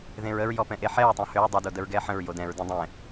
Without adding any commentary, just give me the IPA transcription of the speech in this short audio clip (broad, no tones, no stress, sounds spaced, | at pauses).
ð ẽ ɹ ə ɹ j ɔ p ɛ̃ ʔ e ħ ɛ ɹ tˤ õ h ø ɹ dˤ ə d o d ə ɹ ɡ ɛ ħ ə̃ ɹ j o d ɛ̃ ɹ d ẽ dˤ ɛ̃